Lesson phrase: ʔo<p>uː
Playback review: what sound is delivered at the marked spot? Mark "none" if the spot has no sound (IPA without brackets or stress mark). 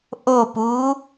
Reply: p